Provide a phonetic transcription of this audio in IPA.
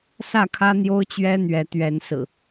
s ä˥˨ kʰ ä˦ n̪ j o˦ ʊ̯ t͡ɕ ɥ ɛ˦ n̪ ɥ ɛ˨˦ t̪ ɥ ɛ˨˦ n s ɹ̩˨˩

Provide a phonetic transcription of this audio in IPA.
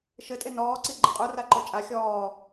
ʃ ɘ tʼ e n ɔː ǀ i ɡ͡ǃ ɘ qʼ u r a ǃ o t͡ʃʼ a xʲ ɔː

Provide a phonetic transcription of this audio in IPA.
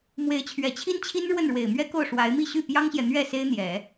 m w e˧˥ ɪ̯ t͡ɕʰ ɥ ɛ˨˩ t͡ɕʰ i˥ n t͡ɕʰ i˥ n ɻ w ə˥˩ n ɻ w e˨˩ ɪ̯ m ɥ ɛ˥ k o˥˩ ʊ̯ ʂ w a˧˥ ɪ̯ m i˥˧ ɕ y˥˩ p j ɑ˥ ŋ ɕ j ɛ˨ n̪ ɥ ɛ˥˩ s e˥ ɪ̯ n̪ j ɛ˨˩˦

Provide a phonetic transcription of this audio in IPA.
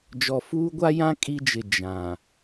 d͡ʒ ɔ˨ f uː˦ ɡʷ a˦ j ã˦ kʼ i˦ d͡ʒ ɪ˨ d͡ʒ ã˨

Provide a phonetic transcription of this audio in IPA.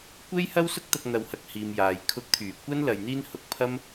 kʷ e˥ j h ɐ˥ w s ʊ˥ k̚ t̪ ɐ˧ k̚ n̪ ɐ˧ w h ɐ˧ k̚ h iː˨ m j aː˨ j kʰ ʊ˧ k̚ t̪ʰ yː˨˩ kʷ ɐ˥ n l ɐ˧ j n̪ iː˥ n h ʊ˨˥ k̚ pʰ ɐ˥ m

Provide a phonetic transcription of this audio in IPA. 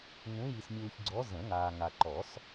ŋ ũ˨˦ j i˨ s mʲ uː˨ ç ɡ͡ǀ ɔ˨˦ z ə̃˨˩˦ ŋ aː˨ ŋ a˨ ǃ ɔ˨˩˦ s

